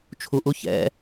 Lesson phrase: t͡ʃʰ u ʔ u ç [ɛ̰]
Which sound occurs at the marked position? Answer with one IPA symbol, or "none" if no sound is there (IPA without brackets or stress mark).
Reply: ɛ̰